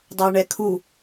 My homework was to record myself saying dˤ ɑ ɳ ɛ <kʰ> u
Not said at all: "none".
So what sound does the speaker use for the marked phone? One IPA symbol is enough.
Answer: kʰ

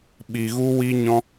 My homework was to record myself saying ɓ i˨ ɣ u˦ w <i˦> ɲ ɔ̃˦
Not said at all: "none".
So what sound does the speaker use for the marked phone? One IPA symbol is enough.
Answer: i˦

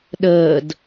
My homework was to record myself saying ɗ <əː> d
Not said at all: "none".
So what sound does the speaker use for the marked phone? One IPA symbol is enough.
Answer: əː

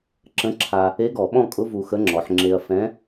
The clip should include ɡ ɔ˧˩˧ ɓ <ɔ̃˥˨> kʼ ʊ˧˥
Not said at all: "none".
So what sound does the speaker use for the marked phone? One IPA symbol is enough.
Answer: ɔ̃˥˨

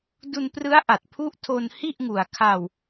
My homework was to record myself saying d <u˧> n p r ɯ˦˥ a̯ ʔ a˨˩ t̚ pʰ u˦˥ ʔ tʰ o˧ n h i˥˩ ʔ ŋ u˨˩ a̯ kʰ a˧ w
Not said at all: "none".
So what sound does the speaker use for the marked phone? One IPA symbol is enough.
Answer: u˧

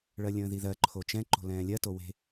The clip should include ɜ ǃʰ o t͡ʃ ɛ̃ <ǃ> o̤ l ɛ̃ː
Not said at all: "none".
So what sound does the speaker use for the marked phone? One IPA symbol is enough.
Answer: ǃ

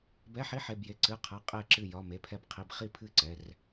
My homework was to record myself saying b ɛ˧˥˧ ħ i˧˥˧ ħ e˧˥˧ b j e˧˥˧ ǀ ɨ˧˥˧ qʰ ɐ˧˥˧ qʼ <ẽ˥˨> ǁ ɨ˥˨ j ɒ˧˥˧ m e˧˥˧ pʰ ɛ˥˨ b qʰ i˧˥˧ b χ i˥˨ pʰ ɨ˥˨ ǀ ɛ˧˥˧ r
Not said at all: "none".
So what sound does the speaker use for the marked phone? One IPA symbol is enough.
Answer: e˥˨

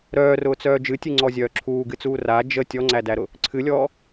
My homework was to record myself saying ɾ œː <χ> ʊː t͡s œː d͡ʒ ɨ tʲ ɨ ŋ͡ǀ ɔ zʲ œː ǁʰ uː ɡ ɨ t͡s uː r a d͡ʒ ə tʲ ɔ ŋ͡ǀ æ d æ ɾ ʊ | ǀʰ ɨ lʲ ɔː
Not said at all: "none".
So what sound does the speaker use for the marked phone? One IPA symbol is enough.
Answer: r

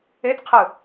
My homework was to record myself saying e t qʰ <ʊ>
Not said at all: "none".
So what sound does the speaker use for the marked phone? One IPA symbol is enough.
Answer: ɯ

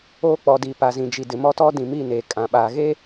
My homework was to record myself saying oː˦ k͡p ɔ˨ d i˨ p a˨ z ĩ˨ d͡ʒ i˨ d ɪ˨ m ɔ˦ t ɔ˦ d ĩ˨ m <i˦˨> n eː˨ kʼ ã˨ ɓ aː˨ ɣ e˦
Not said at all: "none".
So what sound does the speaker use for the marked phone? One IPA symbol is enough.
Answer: i˦˨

